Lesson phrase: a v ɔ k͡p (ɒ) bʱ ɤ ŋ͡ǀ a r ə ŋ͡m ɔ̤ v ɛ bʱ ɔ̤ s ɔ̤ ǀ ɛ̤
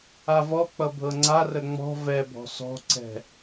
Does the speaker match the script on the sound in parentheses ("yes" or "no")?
no